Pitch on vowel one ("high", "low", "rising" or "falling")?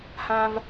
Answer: high